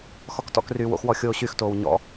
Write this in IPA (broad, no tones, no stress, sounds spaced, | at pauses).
x ɔ k t ɔ̰ k r yː w o̰ x w ɔ xʲ oː ɕ y x t oː w ɲ ɔ̰